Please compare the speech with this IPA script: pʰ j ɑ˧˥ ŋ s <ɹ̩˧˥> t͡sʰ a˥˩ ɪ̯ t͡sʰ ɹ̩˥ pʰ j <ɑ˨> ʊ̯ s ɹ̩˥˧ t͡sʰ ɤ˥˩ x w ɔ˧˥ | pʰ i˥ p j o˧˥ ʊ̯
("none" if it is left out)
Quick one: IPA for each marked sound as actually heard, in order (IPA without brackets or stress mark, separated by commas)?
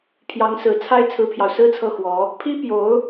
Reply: ɹ̩˨˩, ɑ˨